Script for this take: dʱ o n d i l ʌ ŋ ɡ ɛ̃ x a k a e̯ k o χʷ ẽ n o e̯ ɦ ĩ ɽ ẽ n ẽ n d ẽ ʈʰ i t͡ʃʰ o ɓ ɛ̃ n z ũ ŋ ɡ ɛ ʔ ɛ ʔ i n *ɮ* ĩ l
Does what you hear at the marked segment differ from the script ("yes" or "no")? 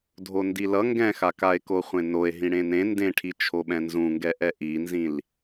yes